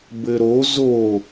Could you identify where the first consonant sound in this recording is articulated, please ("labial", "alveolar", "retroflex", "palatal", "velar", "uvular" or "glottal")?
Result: labial